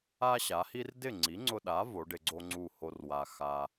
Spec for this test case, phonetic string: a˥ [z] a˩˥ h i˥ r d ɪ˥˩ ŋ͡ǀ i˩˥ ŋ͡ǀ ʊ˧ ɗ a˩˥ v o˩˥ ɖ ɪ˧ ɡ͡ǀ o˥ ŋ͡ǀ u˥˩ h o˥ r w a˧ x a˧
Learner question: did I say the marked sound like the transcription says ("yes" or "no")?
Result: no